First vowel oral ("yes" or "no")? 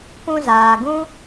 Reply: no